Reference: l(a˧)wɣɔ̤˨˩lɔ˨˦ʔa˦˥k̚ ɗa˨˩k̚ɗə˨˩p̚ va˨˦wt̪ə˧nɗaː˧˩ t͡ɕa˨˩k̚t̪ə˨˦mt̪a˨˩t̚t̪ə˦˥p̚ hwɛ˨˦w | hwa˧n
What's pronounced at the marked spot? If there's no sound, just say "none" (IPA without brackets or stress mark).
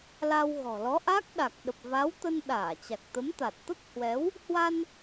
a˧